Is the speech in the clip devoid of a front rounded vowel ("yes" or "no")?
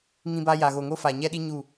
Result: yes